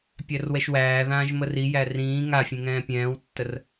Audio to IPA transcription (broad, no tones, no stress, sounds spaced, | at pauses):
pʲ æ r w ɛ ʃ w æː ð ãː ʒ m ə r i j æ r ĩː ŋ a fʲ ẽ ŋ ɛ̃ː pʲ ɛ̃ː w tː ə r